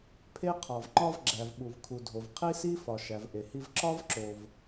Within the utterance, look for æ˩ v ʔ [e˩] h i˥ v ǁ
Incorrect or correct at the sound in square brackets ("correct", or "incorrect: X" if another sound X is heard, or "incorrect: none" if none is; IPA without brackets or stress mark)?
correct